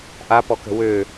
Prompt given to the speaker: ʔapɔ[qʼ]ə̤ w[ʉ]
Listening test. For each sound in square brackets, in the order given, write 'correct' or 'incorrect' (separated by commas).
incorrect, incorrect